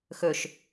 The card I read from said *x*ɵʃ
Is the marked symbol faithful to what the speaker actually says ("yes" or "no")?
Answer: yes